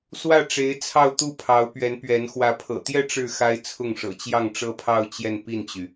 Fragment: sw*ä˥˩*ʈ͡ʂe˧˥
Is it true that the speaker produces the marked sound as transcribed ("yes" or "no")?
yes